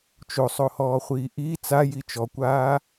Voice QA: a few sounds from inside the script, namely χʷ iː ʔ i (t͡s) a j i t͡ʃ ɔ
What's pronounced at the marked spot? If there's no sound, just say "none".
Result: t͡s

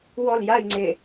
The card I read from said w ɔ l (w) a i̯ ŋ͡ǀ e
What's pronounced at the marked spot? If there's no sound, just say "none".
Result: j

